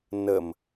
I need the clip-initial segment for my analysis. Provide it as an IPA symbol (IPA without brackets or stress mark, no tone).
n